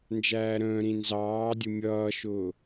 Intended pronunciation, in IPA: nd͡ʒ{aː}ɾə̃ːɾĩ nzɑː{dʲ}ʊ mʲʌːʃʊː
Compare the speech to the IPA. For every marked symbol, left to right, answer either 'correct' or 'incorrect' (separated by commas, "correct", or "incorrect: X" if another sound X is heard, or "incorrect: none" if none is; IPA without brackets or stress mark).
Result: incorrect: æː, correct